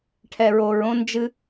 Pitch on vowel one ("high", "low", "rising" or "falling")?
low